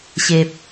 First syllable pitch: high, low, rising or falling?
low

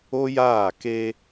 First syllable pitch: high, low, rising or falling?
high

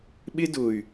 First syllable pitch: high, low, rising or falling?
high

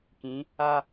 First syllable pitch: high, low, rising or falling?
rising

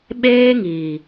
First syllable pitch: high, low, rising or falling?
high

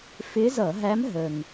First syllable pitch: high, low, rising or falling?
rising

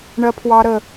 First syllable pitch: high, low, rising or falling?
high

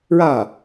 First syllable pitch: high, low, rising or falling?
falling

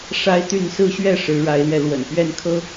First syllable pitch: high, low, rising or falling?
high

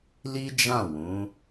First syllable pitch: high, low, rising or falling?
high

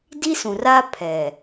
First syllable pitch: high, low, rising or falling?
high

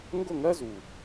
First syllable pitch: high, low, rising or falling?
falling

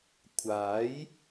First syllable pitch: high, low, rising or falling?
rising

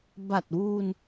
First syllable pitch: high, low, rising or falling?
low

